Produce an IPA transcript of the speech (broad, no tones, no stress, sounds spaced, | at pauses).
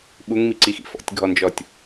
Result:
ɓ u ŋ m i ǀ i x ḭ f ɔ̰ tʲ ɡʱ ɔ n d͡ʒ ɔ tʲ